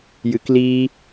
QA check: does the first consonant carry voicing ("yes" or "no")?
yes